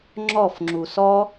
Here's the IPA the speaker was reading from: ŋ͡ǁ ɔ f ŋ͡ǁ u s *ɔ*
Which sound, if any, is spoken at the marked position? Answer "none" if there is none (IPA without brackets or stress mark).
ɔ